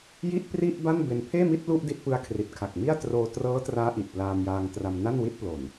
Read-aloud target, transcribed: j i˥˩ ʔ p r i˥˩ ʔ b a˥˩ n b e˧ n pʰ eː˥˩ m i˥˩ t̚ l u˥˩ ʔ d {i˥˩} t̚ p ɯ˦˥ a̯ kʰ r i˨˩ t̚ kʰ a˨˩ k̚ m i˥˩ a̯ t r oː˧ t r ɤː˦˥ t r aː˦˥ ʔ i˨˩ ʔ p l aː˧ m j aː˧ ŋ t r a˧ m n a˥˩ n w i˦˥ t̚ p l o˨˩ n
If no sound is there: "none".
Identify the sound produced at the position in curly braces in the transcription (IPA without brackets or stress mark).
i˥˩